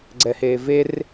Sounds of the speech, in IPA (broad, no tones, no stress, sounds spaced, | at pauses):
ɡ͡ǀ ɛ h eː v e r